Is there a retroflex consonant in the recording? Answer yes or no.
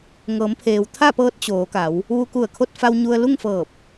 no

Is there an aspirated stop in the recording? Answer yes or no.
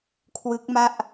yes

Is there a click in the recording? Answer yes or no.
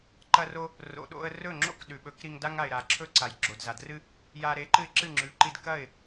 yes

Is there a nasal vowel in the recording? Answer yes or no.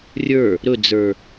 no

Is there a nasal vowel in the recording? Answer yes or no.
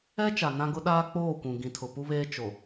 yes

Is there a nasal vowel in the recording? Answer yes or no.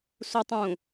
yes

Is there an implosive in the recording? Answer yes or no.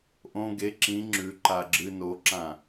no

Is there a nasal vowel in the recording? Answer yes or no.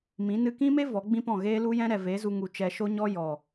yes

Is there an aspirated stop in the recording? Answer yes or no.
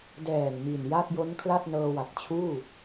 yes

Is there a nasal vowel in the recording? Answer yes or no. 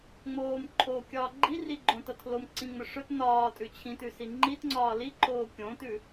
yes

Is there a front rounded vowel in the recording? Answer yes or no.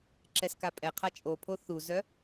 yes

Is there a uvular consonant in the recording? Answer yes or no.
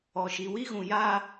no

